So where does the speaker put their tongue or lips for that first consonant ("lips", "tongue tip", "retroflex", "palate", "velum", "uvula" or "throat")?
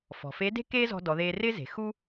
lips